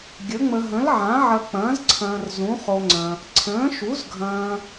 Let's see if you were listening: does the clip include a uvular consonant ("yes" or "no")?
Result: yes